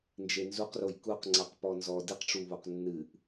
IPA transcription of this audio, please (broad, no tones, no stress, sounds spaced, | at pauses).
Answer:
n d͡ʒ e n z u q r o j k u q ŋ͡ǀ a q p ɔ n z ɔ d ɨ q ʈ͡ʂ u β o q nː ɨ ʔ